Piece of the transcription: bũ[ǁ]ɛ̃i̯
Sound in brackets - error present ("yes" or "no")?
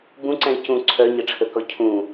yes